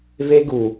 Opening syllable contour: high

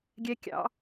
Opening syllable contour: high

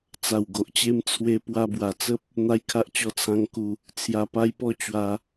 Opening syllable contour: low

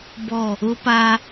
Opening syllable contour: falling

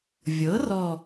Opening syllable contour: rising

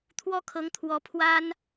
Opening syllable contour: falling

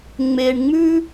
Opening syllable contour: low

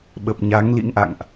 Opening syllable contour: low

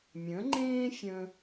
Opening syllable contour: rising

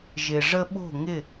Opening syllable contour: low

